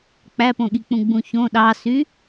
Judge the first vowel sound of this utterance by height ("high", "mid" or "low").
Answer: low